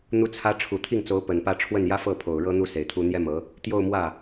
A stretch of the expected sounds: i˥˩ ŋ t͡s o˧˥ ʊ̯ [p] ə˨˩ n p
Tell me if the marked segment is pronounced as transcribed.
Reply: yes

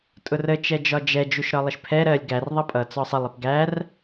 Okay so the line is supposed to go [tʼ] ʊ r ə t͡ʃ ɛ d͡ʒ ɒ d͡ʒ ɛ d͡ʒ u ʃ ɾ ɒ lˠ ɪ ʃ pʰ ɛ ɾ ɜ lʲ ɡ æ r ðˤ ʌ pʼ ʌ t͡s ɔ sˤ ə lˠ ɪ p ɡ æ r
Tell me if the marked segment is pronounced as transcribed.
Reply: yes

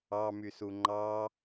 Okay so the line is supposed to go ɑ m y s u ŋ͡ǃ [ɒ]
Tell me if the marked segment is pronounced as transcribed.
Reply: no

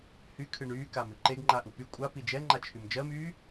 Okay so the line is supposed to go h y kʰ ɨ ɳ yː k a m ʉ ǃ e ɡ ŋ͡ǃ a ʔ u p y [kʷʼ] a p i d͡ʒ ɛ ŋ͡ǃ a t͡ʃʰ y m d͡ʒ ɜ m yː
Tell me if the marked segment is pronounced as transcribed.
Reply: yes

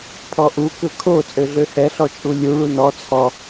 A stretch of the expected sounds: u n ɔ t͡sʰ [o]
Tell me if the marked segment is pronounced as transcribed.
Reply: no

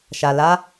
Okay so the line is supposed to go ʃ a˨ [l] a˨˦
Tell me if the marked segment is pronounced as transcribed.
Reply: yes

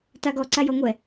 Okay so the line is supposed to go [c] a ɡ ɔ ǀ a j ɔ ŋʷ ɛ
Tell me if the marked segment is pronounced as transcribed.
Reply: no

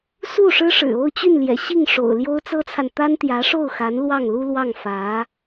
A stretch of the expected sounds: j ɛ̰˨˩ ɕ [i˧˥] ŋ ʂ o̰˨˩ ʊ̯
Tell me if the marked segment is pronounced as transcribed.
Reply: no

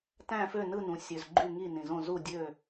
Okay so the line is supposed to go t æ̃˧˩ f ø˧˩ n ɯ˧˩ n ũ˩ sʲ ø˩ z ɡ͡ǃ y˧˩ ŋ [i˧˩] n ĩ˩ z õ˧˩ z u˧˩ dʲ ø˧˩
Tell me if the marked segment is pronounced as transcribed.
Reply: yes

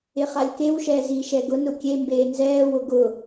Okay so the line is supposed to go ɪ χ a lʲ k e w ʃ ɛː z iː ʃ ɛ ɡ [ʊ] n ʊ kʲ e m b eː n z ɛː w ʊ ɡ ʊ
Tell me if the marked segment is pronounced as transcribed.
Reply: yes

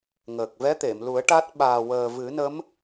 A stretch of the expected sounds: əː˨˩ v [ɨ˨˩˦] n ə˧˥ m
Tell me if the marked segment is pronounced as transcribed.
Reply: yes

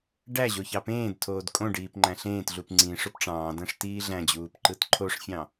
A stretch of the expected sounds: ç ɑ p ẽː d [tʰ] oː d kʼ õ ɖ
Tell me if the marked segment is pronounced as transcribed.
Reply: yes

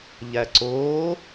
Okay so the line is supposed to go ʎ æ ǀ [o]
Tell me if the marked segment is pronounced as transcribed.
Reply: yes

